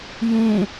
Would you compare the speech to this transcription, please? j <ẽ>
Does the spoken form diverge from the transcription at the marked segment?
no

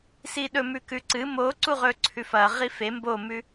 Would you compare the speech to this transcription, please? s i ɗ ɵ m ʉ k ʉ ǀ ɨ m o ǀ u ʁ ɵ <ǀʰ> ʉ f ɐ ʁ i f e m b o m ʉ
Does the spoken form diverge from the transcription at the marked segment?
no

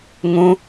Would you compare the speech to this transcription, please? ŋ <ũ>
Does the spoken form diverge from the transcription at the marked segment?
no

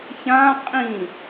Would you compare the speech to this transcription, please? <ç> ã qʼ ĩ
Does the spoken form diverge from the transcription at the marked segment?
no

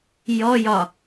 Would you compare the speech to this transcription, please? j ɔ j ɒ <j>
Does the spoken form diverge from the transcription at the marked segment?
yes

